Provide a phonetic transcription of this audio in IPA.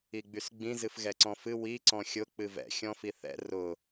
i ɡ͡b y s ɡ͡b ĩ z ɨ f ɣ ɛ ǀ ɔ̃ f ɨ w i ǀ ɔ̃ xʲ ʊ k͡p ɨ v ɛ̰ xʲ ɔ̃ f i θ ɛ̰ r ʊ

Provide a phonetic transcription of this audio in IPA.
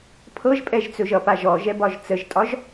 pʰ ɤ ʒ pʼ ɛ ʒ t͡s ɵ ʒ ʌ p a ʒ ɔ ʒ ɛ b ɒ ʒ t͡s ə ʒ tʼ ɒ ʒ

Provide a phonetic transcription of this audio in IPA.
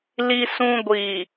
l i˦ s ũ˦ ɡʷ i˨

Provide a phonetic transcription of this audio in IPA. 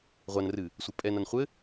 ʁʷ a n r ɨ | sʷ ɘ pʼ ɛ n a n χʷ ɘ

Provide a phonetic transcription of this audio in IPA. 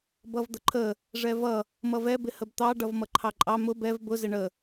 b ʌ v d̪ ə ǃʰ ə | ʐ ɛ v ʌ | m ʌ v ɛ b ɪ h ə b t̪ ɑ ɖ ʌ v m ʌ ǃʰ ɑ ǃʼ ɑ m ʊ b ɛ v b ʊ z ɪ ɳ ə

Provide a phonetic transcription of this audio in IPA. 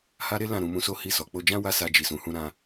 h a˦ ɾ e˦ l ã˦˨ ɾ ũ˧ m ũ˧ s o˦ h i˧ s ɔ˨ k͡p o˧ d͡ʒ ã˦ w a˦ s a˧ d͡ʒ i˨ s ũ˨ h ũ˧ ɾ ã˧

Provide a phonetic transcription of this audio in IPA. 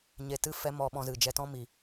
ɲ e˧ t ɨ˦ f ɛ˦ m ɔ˧ ɓ ɔ̃˧ z ɨ˨ d͡ʒ ɛ˧ t ɔ̃˦ m i˨

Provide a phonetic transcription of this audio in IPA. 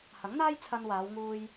h ɐ˨˥ ŋ n̪ aː˥ j t͡sʰ ɐ˧ n w aː˨˧ w ŋ uː˧ j

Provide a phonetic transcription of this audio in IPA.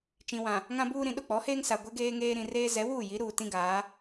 t͡ʃ ĩ˨ w ã˨ | ŋ ã˦ b uː˦ ɾ ĩ˨ ɗ ʊ˦˨ k͡p ɔ˨˦ h eː˦ ŋ s a˨ ɡʷ ɛ˦ ɡ eː˦ ŋ eː˦ ɾ ĩ˨ r eː˦ z ɛ˨˦ w uː˦˨ j i˨˦ ɾ uː˨ t ĩ˦ ɡ aː˨˦

